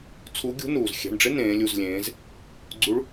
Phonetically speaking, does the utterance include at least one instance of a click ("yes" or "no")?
yes